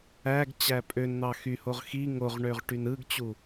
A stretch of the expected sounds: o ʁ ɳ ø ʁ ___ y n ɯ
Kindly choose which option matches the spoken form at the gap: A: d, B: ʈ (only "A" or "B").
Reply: B